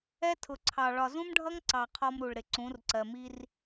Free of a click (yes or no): no